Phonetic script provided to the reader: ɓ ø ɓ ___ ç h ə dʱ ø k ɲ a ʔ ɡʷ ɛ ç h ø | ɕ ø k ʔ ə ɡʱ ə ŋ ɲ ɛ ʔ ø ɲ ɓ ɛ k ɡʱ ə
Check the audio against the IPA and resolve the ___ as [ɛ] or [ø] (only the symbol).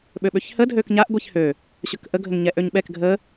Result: ø